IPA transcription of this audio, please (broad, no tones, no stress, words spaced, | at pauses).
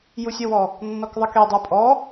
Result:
jusʲøwɔ | nːɔkðˤakedˤə˞ pʼɔ